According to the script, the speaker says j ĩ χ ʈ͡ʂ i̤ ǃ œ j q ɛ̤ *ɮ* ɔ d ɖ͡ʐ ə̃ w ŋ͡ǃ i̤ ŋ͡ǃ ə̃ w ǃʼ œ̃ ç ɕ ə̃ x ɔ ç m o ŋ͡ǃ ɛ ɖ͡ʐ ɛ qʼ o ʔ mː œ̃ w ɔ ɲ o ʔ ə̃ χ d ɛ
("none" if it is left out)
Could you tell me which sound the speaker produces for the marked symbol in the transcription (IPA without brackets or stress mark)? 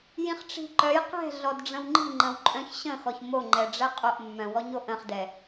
ɮ